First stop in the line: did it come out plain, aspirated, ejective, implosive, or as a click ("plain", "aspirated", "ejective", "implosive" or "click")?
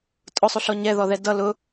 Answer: ejective